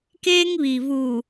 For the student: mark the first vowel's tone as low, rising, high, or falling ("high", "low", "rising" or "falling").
high